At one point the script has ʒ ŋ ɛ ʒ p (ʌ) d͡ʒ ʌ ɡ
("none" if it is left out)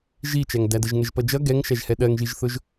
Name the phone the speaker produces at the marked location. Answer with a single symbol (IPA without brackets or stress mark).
ʌ